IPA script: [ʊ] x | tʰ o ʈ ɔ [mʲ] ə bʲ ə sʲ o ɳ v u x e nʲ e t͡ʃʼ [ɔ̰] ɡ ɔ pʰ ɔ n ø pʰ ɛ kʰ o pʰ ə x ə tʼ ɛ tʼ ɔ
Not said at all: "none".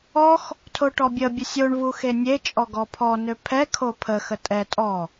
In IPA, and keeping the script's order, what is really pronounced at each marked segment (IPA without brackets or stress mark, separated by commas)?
ɔ, bʲ, ɔ